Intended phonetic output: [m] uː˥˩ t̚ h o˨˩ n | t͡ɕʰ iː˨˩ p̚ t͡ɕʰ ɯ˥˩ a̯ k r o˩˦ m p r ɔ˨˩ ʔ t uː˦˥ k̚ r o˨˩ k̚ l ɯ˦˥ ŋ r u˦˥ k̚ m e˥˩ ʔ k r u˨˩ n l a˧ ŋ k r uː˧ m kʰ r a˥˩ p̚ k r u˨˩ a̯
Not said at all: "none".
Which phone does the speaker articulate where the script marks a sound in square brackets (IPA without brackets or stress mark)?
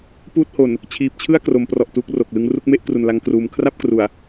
p